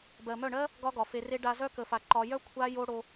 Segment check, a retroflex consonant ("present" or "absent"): present